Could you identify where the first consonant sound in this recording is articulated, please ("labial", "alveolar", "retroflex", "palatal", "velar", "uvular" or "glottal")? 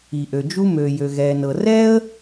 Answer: glottal